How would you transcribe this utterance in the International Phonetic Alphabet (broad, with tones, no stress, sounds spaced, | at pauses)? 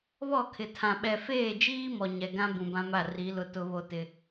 β ɔ˦˨ kʰ ɪ˨ tʰ ã˨ ɓ ɛ˨ f eː˦˨ d͡ʒ iː˦ m ɔ˨ ɲ ɛ˨ ɡ ã˦ b ũ˨ b ã˦ m a˦˨ r i˨˦ l ʊ˦ t ʊ˦ β o˦ t ɪ˦